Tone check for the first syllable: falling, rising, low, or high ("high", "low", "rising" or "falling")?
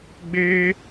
high